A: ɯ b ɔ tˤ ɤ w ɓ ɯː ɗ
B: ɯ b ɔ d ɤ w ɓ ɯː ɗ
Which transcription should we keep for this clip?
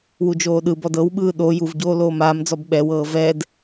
B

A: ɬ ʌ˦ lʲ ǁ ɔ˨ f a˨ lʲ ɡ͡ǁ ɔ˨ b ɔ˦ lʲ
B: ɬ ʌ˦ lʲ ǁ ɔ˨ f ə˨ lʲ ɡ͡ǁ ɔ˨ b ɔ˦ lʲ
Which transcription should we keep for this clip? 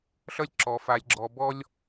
A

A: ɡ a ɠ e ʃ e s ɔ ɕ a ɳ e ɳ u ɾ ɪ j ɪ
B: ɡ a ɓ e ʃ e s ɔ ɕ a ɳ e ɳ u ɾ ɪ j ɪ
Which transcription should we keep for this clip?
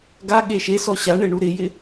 A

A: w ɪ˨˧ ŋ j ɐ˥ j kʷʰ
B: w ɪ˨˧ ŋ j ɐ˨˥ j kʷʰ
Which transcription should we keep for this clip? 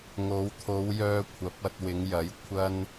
B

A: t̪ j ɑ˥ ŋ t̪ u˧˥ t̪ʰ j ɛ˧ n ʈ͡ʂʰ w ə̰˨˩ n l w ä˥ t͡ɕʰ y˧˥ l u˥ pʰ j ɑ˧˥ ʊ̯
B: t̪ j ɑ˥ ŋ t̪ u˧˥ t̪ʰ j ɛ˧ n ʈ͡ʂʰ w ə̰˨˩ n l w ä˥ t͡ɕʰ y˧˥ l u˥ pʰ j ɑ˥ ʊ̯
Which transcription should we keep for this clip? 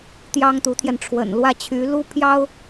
B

